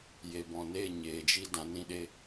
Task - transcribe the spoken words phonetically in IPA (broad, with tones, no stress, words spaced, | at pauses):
je˨bɔ̃˨ neː˦˨ ɲeː˨d͡ʒi˦ dã˨˦nĩ˦ɗe˦